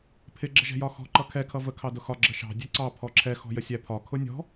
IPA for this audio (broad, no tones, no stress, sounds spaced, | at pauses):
pʰ ɪ ɡ͡ǁ ə ʒ ɛ̤ j ɒ x ɔ̤ ǃ ʌ kʰ ɛ kʰ ʌ v ə kʰ ɑ d ʊ x ɒ ɡ͡ǁ ə ʃ ɑ̤ dʲ ɛ ǀ ɑ pʰ ɔ ǁʰ ɛ x ɔ̤ j ə sʲ æ pʰ ɒ kʰ ʊ nʲ ɔ̤